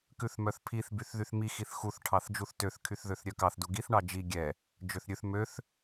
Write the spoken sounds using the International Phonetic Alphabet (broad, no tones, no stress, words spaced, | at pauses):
kʉθmœθpʰiθ byθðyθmi xiθxuθ ʈʰɑθd͡ʒuθtøθ kʰyθðøθɾʲœkɑθ duɡiθ ɳɑd͡ʒi ɡʲɛ | d͡ʒøθɾʲʉθ møθ